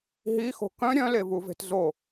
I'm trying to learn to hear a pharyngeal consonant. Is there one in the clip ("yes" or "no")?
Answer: no